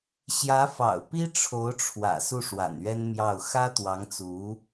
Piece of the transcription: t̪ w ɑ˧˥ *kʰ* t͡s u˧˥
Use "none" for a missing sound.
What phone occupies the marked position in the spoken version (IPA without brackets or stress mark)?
ŋ